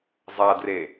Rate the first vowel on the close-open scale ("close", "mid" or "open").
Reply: open